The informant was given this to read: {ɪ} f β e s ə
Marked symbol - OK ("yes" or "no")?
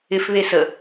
yes